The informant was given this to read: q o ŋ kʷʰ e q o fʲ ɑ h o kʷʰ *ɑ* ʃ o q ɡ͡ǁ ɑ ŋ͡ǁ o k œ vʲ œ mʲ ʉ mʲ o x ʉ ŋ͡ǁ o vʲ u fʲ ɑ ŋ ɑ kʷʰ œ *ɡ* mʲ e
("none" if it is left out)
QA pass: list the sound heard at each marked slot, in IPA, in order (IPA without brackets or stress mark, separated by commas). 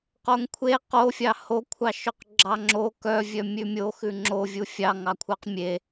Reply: ɑ, q